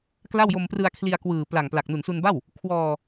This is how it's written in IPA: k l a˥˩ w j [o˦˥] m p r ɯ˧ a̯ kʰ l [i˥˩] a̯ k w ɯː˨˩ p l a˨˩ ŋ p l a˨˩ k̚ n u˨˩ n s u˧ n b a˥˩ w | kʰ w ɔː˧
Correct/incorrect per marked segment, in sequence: incorrect, incorrect

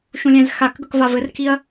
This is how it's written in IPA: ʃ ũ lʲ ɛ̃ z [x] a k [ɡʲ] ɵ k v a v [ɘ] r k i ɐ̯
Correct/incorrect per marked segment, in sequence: correct, incorrect, correct

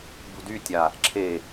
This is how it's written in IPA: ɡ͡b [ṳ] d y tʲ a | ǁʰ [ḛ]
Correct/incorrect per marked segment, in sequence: correct, incorrect

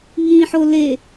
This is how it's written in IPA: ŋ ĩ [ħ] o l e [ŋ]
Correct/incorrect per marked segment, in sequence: correct, incorrect

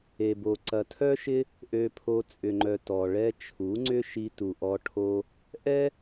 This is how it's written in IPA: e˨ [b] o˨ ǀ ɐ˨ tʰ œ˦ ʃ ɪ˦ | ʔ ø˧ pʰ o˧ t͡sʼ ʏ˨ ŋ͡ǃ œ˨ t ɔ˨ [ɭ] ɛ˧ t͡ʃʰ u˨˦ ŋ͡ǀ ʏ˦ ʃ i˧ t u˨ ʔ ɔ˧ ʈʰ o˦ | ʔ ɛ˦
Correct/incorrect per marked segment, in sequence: correct, correct

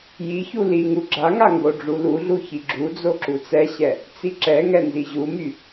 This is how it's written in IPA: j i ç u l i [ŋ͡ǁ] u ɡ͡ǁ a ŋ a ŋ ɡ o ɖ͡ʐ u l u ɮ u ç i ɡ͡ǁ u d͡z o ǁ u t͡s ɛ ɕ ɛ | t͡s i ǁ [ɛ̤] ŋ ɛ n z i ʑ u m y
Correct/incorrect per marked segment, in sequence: incorrect, incorrect

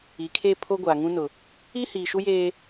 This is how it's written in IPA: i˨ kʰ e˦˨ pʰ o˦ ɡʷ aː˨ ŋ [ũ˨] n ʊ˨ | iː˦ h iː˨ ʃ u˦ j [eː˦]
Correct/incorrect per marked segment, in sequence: incorrect, correct

